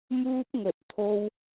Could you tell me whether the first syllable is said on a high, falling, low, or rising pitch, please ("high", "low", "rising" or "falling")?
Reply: high